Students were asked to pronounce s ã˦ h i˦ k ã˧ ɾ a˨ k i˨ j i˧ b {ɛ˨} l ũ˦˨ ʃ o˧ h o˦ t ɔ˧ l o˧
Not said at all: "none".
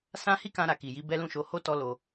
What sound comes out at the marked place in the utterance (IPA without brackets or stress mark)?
ɛ˦